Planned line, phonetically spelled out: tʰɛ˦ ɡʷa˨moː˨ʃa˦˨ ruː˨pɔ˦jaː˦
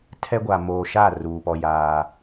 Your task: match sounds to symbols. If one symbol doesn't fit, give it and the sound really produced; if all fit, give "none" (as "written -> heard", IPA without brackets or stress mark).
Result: none